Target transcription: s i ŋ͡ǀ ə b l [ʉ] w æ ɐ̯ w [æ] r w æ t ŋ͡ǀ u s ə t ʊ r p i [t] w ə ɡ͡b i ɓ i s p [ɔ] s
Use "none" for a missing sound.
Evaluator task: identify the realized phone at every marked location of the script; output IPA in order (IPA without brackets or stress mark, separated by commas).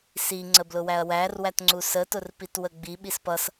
ʊ, æ, t, ʌ